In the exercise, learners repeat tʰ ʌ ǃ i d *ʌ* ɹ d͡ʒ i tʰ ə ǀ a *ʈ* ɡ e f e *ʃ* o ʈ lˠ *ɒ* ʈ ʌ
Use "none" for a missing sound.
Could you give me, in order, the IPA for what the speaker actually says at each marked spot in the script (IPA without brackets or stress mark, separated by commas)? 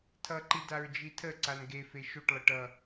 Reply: a, n, ʃ, ʌ